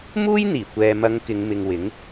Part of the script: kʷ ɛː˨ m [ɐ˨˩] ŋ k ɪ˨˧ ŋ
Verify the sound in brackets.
incorrect: ɐ˨˧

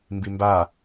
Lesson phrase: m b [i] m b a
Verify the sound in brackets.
correct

